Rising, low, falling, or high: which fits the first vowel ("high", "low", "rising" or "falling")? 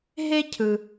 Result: high